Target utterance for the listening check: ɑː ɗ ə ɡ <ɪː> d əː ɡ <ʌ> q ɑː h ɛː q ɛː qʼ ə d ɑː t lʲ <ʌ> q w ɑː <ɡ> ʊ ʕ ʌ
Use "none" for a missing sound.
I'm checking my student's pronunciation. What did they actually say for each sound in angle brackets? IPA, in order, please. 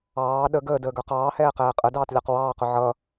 əː, ə˞, ɑ, q

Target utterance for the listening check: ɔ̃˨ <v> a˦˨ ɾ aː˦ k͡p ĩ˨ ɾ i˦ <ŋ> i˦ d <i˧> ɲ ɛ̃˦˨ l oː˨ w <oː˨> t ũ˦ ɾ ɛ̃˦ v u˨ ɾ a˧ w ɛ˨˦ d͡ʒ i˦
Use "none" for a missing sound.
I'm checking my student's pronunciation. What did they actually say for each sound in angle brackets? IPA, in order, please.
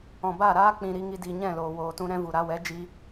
b, ŋ, i˧, oː˨

